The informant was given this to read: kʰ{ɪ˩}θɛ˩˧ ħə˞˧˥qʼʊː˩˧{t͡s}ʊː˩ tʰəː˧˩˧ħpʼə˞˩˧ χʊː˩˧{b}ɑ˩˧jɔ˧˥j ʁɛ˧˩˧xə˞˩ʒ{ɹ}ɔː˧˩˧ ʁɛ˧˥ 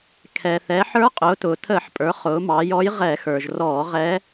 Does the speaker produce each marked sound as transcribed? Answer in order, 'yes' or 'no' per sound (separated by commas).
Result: no, no, no, no